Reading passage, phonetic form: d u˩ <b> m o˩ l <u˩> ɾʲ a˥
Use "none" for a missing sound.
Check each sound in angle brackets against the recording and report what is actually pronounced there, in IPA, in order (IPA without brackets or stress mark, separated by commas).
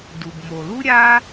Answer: b, u˥